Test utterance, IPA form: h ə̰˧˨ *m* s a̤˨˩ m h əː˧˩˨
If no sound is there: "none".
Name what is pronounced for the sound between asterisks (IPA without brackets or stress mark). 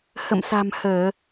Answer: m